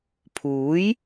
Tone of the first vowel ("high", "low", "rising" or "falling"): rising